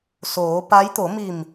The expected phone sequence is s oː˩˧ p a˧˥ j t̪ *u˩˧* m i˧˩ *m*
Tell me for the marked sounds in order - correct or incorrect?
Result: incorrect: o˩˧, correct

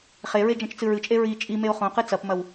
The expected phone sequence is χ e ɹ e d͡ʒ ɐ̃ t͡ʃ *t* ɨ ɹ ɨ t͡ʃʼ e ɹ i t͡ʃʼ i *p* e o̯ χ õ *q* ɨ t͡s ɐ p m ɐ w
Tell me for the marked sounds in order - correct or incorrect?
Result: incorrect: t͡s, incorrect: m, correct

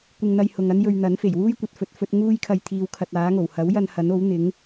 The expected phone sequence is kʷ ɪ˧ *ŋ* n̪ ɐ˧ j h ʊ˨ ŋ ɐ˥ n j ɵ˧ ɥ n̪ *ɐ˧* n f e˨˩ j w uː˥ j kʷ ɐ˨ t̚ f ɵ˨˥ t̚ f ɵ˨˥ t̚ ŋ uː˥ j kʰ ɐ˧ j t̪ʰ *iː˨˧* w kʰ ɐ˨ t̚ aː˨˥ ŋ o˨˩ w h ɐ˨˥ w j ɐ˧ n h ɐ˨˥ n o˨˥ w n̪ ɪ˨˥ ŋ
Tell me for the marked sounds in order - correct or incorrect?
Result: correct, incorrect: ɐ˨˥, correct

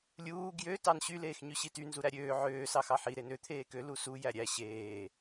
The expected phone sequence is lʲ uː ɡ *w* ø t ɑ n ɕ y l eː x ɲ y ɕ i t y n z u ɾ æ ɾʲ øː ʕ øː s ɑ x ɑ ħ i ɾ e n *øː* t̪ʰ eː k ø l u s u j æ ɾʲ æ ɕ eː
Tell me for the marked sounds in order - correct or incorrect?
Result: incorrect: j, incorrect: ø

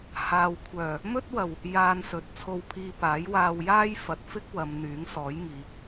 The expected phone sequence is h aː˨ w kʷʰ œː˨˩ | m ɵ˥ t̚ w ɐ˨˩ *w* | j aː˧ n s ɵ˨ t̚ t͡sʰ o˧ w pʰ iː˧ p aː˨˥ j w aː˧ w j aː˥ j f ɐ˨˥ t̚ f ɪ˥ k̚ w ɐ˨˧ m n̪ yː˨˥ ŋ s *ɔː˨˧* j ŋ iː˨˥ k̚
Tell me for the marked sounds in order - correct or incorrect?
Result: correct, incorrect: ɔː˨˥

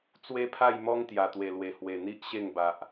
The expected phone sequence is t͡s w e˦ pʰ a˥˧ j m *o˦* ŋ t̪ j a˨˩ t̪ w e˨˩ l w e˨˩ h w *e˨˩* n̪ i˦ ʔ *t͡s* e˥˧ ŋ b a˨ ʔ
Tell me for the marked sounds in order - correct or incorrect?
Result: incorrect: ɔ˦, correct, incorrect: ɕ

